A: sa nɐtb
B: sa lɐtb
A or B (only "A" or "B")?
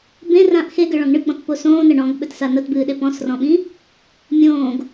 A